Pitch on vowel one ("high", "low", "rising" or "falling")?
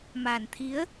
low